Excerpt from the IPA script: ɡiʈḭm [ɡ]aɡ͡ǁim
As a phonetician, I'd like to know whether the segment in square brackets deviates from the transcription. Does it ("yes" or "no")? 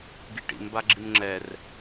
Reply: yes